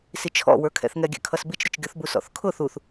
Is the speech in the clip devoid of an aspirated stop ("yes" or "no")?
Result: no